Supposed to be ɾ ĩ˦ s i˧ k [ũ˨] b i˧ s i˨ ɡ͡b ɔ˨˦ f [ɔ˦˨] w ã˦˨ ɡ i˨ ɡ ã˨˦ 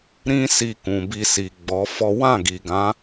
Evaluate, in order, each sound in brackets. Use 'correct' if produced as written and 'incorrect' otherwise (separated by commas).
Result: correct, incorrect